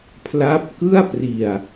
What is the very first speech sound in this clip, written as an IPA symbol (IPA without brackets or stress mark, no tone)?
pʰ